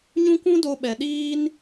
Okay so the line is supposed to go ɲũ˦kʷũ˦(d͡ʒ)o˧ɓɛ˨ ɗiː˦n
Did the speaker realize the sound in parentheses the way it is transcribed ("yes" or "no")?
no